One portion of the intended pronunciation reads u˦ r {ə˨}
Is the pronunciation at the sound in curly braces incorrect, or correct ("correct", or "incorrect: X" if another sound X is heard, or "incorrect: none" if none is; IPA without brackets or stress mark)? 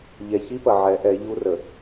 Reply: correct